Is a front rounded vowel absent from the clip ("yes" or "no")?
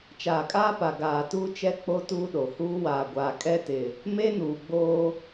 yes